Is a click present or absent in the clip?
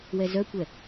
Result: absent